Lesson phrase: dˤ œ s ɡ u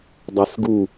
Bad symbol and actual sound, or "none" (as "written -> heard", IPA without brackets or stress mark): œ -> æ